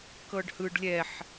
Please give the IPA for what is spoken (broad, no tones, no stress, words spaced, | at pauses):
kɤɖhɯɖ lʲɛħ